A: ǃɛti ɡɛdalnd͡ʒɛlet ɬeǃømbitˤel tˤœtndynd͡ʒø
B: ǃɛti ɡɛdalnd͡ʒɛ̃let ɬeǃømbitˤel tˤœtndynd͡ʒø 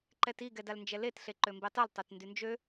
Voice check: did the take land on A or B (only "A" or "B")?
A